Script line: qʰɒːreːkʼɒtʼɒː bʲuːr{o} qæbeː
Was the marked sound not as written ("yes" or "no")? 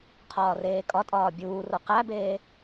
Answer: no